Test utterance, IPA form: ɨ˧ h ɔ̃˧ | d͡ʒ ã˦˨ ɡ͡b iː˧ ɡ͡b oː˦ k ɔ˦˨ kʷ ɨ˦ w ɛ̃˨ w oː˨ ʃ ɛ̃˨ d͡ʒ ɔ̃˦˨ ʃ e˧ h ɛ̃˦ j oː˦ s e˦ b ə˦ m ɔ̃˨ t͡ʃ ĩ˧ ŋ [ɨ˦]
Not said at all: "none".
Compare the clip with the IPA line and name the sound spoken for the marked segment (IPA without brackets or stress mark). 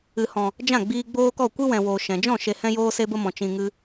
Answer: ɨ˦